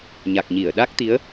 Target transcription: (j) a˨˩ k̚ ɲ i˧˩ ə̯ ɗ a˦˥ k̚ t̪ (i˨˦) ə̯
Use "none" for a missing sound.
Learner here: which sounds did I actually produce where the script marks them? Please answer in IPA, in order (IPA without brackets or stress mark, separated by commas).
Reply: ɲ, i˨˦